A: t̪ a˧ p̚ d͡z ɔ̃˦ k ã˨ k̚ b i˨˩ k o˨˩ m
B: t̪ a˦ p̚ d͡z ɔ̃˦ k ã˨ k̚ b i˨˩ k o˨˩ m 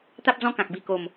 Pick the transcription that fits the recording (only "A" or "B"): B